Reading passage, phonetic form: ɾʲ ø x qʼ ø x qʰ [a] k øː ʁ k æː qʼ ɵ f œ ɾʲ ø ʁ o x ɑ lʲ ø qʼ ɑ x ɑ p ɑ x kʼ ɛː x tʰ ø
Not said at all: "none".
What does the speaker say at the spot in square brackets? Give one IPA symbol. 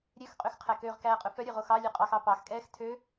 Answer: æ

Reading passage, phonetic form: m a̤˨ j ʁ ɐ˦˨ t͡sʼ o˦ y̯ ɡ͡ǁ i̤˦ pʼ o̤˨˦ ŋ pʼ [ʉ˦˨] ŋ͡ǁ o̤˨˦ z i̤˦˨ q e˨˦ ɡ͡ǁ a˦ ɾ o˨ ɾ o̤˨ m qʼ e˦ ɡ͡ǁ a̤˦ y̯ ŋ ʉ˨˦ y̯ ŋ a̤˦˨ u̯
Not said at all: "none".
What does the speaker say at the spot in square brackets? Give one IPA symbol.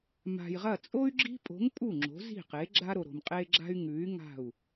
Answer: u˦˨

